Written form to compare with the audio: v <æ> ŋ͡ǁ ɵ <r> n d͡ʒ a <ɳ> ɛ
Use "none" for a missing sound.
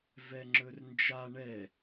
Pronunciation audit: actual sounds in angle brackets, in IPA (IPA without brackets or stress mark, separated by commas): ɛ, r, ɳ